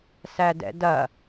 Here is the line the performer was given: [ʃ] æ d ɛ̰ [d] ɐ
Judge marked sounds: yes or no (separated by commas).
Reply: no, yes